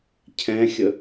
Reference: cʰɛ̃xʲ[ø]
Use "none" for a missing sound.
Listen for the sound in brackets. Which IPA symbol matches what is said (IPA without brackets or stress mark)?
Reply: ə